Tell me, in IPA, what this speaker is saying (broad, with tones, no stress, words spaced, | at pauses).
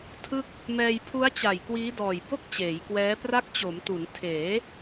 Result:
tʰɯ˥˩k̚ | mɛː˧jpʰu˦˥a̯t͡ɕa˨˩j kwiː˦˥dɔː˨˩j bo˥˩k̚ t͡ɕeː˩˦jkwɛː˦˥pra˥˩k̚ t͡ɕo˩˦mtu˩˦n tʰeː˩˦